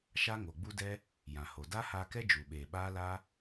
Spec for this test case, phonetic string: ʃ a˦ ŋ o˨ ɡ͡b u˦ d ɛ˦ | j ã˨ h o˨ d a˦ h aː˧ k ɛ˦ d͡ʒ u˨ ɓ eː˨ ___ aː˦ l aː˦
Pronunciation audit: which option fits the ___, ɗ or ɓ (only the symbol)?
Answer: ɓ